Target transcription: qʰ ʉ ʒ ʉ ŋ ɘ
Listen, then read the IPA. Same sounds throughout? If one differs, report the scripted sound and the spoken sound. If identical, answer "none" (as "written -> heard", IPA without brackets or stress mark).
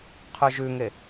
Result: ɘ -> e